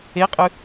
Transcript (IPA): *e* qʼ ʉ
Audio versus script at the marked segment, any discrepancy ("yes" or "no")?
no